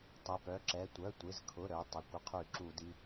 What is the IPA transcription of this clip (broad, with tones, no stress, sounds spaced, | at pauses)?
tˤ ə˩˧˩ p œ˩˧˩ ǁ ɛ˩˧˩ tʷ œ˩˧˩ tʷ ɪ˩˧˩ z kʰ ʊ˩˧˩ ɾ œ˩˧˩ tˤ ɛ˩˧˩ kʷ ə˧˩˧ qʰ y˧˩˧ ǁ u˧˩˧ d i˩˧˩